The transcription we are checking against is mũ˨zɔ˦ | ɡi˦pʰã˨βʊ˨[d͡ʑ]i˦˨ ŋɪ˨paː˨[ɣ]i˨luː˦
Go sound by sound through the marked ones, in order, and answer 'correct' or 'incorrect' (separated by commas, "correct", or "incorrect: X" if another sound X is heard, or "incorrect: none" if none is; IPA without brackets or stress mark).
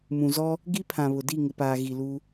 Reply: incorrect: d, correct